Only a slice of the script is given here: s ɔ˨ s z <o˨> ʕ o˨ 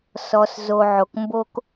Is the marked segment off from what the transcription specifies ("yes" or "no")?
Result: no